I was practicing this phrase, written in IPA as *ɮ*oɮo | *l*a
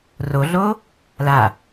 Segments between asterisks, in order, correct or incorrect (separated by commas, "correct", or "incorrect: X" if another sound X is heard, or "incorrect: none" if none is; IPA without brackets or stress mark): incorrect: r, correct